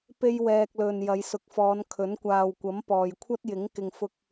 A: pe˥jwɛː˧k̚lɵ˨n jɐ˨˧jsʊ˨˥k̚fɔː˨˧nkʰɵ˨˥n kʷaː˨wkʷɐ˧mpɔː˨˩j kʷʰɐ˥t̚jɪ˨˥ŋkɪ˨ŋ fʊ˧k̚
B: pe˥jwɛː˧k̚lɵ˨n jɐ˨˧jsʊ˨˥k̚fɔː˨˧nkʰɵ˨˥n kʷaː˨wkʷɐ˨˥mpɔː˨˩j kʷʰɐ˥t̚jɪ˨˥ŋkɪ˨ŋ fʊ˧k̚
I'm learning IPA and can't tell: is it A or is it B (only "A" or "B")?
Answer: B